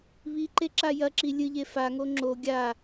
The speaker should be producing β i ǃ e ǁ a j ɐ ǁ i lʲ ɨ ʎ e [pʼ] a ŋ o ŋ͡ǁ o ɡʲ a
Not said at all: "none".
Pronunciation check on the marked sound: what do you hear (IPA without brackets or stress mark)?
f